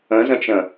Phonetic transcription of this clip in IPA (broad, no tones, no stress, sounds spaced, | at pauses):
ə̃ z ə̃ t͡ʃ ə̃